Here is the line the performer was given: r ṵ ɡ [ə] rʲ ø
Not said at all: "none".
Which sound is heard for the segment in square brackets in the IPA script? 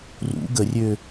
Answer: ə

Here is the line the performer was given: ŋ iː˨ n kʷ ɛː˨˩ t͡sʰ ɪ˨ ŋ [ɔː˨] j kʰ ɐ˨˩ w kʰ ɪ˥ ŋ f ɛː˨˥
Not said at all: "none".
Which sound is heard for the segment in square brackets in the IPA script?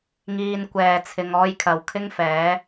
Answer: ɔː˧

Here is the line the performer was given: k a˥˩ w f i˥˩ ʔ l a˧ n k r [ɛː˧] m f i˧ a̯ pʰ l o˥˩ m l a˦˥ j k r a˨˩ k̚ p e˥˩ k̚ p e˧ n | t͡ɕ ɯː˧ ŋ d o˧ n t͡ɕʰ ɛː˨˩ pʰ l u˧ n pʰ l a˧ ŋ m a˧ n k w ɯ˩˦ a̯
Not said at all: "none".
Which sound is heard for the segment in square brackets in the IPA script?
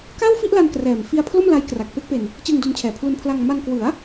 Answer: ɛː˨˩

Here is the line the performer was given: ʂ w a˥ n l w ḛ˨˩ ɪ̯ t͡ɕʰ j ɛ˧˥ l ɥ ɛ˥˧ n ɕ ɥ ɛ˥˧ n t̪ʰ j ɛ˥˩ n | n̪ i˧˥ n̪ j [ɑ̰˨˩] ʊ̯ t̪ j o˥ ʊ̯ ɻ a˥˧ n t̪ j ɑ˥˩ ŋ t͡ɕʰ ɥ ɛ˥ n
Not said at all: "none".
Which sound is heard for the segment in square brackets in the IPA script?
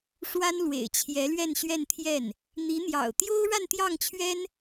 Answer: ɑ̰˨˩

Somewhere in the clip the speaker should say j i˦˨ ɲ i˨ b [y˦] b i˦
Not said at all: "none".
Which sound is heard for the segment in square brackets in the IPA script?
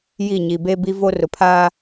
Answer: e˦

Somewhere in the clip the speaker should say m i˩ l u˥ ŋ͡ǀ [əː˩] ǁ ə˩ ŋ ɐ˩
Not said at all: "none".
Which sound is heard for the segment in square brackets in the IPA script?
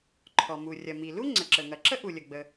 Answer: ə˩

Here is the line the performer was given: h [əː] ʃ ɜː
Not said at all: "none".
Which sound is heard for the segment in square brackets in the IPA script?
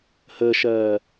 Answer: əː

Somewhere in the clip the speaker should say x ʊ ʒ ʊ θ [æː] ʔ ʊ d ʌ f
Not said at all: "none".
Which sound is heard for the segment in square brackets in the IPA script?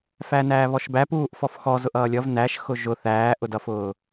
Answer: æː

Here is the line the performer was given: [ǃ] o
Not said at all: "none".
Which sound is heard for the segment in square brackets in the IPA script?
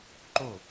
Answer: ǃ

